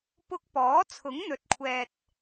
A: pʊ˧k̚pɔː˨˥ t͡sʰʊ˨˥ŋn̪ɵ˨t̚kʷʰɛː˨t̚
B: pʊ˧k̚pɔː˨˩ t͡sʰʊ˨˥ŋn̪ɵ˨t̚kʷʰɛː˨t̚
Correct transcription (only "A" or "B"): A